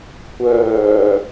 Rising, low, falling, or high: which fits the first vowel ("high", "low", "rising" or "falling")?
low